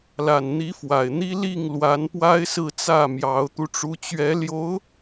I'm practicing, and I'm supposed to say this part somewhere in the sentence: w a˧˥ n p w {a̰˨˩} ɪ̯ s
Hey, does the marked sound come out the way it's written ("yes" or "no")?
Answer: no